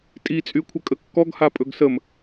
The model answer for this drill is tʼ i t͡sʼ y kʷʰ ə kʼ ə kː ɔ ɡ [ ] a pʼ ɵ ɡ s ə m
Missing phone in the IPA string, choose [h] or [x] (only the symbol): h